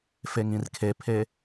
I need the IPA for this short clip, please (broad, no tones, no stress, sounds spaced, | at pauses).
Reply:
f e ŋ ĩ r kʰ e pʰ e